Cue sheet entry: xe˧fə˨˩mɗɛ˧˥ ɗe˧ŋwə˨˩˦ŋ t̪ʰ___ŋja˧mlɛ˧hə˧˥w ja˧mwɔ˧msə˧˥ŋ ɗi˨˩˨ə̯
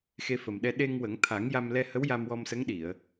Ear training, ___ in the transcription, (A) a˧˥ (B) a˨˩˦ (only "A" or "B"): B